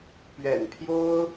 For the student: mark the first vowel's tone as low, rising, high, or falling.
low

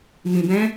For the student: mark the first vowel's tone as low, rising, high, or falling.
low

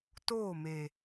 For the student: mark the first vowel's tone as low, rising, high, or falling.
falling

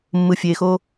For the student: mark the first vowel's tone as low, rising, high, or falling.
low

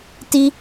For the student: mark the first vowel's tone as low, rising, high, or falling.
high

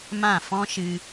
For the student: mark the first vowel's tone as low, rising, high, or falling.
falling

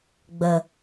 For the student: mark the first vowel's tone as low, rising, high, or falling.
low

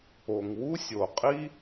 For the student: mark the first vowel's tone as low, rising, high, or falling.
low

